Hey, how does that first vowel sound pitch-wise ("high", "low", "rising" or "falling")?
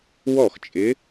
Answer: falling